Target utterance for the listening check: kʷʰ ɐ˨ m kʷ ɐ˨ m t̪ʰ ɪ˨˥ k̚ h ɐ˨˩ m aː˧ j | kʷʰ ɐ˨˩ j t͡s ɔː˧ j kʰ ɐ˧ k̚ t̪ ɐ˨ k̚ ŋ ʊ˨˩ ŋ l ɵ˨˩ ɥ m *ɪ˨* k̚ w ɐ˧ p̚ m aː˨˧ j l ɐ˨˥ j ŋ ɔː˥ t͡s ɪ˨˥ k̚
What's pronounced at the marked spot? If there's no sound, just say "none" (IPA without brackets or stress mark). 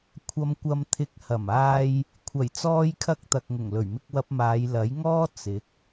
ɪ˧